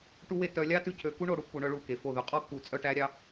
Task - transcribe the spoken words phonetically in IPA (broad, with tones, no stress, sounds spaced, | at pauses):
ʈ u˧ w e˧ t œ˨ lʲ ɑ˦ t ʉ˧ cʰ ø˨ k u˦ ɳ o˦˨ ɽ u˦ pː u˨ ɳ œ˧ ɭ u˦˨ k e˨ f o˦˨ ð ɵ˨ qʼ ɔ˦ kː u˨ t͡sʼ œ˦˨ ʈ æ˦ ɾʲ ɑ˦